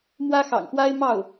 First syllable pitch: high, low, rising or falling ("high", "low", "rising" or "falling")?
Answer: high